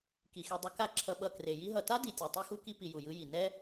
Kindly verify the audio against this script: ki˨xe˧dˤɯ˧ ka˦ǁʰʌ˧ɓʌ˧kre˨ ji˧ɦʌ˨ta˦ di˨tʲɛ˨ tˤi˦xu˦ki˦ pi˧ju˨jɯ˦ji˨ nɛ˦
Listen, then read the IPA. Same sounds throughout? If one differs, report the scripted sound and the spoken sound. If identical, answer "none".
none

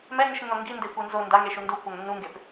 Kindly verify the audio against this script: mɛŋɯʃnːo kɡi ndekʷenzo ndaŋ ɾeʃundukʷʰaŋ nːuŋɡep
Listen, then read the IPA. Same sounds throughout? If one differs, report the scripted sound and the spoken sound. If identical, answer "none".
k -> ŋ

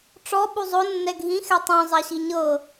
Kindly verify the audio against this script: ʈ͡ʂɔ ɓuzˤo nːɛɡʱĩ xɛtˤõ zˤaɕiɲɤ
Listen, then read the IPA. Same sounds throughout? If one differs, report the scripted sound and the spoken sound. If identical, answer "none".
none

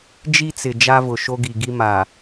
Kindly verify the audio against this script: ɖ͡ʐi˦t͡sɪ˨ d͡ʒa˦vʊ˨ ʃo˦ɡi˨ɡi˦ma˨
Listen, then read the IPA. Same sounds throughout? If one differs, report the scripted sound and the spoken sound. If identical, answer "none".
ɖ͡ʐ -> d͡ʒ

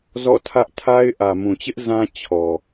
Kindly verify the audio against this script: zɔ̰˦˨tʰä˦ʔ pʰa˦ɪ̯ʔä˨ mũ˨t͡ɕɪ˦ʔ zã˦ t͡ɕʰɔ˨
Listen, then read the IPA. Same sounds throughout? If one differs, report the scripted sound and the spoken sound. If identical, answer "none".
pʰ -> tʰ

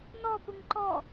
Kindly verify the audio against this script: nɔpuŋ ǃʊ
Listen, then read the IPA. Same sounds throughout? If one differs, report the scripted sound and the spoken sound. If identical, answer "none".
ʊ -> ɔ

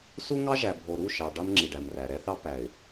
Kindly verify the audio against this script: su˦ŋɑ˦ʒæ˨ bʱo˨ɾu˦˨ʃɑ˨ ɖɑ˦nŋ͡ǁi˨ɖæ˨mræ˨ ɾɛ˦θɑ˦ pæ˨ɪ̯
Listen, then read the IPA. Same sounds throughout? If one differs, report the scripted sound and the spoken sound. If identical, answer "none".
none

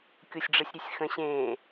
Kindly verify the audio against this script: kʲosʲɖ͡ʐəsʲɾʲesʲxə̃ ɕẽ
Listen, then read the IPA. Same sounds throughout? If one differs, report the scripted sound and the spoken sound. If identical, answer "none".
none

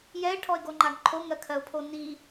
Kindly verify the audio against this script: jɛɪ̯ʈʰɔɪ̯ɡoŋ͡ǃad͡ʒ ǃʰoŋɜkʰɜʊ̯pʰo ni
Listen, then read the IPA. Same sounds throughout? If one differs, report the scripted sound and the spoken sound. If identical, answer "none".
d͡ʒ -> ɡ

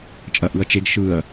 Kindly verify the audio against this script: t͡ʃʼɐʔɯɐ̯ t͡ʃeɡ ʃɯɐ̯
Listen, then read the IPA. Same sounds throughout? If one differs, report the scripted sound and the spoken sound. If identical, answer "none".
none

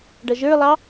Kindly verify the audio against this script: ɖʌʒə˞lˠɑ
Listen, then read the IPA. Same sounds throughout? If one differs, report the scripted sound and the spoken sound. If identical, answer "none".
none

